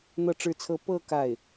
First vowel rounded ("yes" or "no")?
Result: no